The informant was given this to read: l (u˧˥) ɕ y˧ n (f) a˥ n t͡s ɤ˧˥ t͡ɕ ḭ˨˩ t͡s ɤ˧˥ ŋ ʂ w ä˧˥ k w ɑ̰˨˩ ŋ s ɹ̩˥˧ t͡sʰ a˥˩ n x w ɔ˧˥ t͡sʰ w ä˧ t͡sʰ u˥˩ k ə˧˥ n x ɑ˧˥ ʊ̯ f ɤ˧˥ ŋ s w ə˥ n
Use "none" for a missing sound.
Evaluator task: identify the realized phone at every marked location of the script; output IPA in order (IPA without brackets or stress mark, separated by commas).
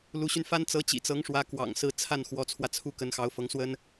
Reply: u˧˥, f